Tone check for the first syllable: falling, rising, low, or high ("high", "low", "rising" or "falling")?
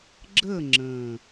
falling